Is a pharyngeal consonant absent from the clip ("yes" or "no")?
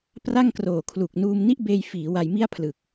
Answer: yes